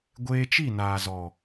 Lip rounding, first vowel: unrounded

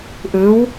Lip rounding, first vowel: unrounded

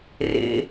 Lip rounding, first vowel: unrounded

